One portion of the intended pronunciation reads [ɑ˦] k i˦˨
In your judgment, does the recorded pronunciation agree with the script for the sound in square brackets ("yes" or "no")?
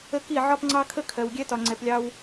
no